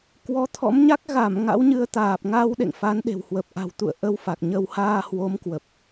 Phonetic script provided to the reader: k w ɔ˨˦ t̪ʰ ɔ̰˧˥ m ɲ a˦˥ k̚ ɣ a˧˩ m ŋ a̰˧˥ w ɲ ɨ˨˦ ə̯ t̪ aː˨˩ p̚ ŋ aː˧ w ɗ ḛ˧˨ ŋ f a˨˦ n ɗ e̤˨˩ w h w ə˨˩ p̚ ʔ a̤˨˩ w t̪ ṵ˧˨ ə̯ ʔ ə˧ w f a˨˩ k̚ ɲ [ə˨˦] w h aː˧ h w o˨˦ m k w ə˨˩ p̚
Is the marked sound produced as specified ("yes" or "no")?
no